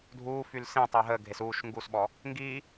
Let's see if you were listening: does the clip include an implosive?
yes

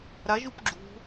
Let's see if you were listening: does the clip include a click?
yes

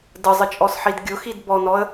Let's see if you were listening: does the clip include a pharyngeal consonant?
yes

